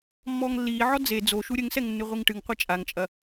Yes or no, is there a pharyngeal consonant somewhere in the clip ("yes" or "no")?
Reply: yes